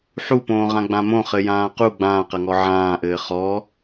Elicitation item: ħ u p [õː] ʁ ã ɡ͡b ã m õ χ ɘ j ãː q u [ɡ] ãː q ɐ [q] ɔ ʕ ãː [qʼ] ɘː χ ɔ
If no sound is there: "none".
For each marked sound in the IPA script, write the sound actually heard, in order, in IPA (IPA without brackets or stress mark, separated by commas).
õː, ɡ͡b, ŋ, ʔ